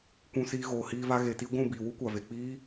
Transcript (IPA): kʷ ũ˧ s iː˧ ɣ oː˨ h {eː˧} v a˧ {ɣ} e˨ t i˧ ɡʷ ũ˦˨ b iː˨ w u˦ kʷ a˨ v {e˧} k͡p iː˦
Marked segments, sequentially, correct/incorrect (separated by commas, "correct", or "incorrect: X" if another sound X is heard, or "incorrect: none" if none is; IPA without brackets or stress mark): incorrect: iː˧, correct, incorrect: e˨